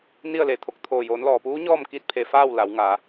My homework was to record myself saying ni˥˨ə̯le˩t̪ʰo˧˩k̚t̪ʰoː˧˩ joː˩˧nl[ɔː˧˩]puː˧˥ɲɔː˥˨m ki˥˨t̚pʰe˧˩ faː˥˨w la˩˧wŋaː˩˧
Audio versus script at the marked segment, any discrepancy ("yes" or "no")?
yes